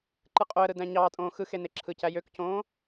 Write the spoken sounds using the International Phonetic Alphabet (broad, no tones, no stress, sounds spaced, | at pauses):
ǃ ɯ qʼ o ə̯ ɾ ɯ d æ̃ ɲ ɑː tʼ õː x ɯ x e n e ǁʰ ɯ c æ j ø k c õː